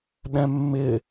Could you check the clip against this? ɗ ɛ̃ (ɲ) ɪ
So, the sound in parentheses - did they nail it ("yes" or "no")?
no